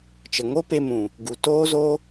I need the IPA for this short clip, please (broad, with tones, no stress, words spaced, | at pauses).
t͡ʃə˨ŋo˦pe˧mũ˨ | ɡu˨toː˦zo˦